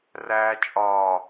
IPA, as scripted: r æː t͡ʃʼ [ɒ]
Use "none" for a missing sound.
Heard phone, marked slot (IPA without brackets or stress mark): ɒː